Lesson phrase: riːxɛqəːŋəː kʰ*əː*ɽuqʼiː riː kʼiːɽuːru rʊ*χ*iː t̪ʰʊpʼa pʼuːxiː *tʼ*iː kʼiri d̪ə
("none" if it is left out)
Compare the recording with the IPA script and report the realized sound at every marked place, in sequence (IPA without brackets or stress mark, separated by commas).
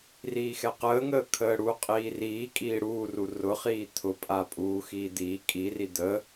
əː, χ, d̪